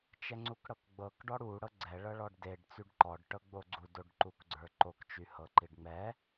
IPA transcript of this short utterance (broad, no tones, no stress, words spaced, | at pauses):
t͡ʃɛŋ͡ǀukɽɤkɡ͡bɤk ɖɔɽu ɽɤɡ͡ǀɛ ɭɤɭɔɖdeɖ t͡syɖǃɔɖ ʈɤɡ͡boɡ͡ǀu doɖǃukɡ͡ǀə˞ǃok t͡ʃyhɤǃiɖŋ͡mɛ